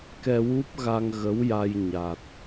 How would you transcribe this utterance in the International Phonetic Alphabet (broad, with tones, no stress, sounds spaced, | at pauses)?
k ɛ˧ w u˦˥ p̚ ɣ a˧ ŋ ɣ ə˧˥ w j a˧ j ɲ a˨˩ t̚